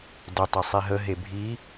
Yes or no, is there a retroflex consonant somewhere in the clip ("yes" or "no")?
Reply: no